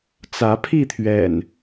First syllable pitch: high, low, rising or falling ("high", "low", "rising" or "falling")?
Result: rising